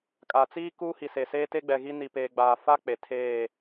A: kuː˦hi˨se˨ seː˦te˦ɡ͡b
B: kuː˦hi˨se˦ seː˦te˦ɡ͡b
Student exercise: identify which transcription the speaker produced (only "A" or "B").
A